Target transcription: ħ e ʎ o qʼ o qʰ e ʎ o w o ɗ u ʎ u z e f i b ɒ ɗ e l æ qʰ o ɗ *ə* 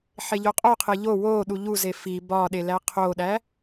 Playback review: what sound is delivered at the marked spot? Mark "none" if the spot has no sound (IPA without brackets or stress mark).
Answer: æ